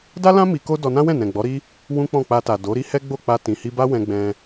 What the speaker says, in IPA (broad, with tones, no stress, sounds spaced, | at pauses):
d a˦ l ã˦ m i˧ k o˦ d ɔ˧ n ã˦ w ɛ̃˦˨ n ɛ̃˨ ɡ͡b ɔ˨˦ ɾ i˦ | w ũ˦ k͡p ɔ̃˦˨ k͡p a˧ t a˨ d o˨˦ ɾ i˦ h ɛ˦ ɡ͡b o˦˨ k͡p a˧ t ĩ˨ h i˧ b a˦ w ɛ̃˧ ɡ͡b ɛ̃˧